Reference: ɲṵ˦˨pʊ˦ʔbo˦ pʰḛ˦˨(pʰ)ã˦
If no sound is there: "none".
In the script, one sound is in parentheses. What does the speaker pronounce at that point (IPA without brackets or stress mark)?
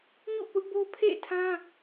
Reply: tʰ